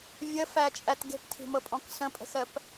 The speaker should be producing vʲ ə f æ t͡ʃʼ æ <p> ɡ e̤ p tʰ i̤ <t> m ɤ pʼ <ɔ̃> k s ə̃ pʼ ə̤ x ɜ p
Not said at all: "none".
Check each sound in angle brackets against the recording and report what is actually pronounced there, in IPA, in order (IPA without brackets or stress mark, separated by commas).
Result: t, none, ɔ̃